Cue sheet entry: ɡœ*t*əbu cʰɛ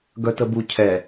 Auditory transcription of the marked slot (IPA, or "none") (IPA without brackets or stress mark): t